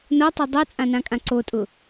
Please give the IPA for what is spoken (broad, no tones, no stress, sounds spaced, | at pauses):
n o tˤ u dˤ o t͡sʼ ã n ã kʼ ã ǀ o tʼ ʊ